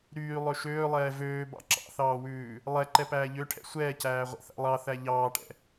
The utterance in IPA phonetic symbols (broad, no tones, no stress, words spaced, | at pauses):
ɾyːlˠø ʃøːlˠɛː vøːbɑ̰ ǁɑ̰θɑːwʉː | lˠɛǃɛpæː ʎøʈʰɛ̰ sʷɛːcæːʁʷɛ̰θæ̰ lˠɑθæ ʎɑːʈɛ̰